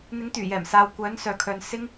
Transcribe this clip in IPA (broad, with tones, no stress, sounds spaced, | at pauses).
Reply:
n̪ ɪ˨˥ ŋ t̪ yː˨˩ j ɛː˨˩ m s aː˨ w kʷ œː˨˥ n s œː˨ kʰ œː˨ n s ɪ˥ ŋ